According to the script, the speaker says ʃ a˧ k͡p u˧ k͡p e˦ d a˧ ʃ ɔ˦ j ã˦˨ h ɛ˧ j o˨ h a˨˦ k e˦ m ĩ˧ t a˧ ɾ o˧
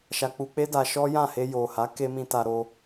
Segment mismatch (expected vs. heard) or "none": ɛ˧ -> e˧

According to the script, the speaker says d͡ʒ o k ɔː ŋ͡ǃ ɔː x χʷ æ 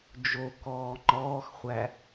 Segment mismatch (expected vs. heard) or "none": none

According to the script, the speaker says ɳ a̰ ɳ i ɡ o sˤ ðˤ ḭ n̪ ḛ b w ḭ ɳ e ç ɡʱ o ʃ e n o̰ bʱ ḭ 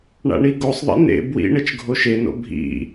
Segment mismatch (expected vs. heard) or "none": ç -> t͡ʃ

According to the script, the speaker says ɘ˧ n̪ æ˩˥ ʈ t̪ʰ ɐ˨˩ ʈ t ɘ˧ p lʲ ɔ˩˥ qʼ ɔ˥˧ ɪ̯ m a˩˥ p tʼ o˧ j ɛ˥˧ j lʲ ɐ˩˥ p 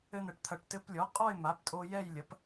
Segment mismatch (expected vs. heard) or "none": æ˩˥ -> ɛ˩˥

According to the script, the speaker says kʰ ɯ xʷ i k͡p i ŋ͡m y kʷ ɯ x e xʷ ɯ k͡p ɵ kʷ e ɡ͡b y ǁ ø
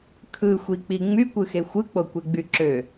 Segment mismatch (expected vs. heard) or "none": ɵ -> o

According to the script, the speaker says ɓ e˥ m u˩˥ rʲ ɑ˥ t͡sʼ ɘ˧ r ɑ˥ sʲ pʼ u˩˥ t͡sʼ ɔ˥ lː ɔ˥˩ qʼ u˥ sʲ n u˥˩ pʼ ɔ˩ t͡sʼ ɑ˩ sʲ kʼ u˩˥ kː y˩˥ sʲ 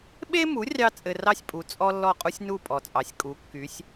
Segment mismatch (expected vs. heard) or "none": none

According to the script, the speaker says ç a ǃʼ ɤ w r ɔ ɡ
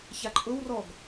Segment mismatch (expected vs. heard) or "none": none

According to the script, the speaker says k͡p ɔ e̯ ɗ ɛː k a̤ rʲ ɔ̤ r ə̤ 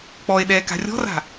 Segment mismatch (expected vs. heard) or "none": ə̤ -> a̤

